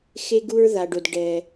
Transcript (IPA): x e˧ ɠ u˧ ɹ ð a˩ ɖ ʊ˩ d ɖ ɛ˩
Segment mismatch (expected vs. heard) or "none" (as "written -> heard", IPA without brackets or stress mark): ɠ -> ɡ